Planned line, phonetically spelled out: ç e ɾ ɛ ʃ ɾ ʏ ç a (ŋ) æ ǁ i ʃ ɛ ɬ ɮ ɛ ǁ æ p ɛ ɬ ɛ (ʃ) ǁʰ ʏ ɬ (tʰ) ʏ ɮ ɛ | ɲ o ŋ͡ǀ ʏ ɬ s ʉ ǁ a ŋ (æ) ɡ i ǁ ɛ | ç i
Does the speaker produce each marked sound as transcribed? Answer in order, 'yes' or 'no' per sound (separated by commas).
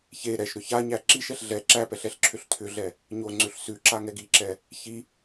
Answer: no, no, yes, no